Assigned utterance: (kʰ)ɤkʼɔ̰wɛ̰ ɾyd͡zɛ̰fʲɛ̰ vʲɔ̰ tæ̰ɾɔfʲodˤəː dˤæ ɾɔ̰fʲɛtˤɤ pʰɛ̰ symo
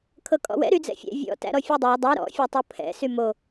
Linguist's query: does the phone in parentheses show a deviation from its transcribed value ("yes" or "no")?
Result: no